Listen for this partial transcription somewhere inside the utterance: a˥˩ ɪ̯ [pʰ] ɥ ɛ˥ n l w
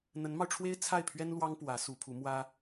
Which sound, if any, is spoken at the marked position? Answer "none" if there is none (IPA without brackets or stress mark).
pʰ